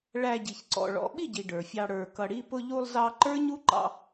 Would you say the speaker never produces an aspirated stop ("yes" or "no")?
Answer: yes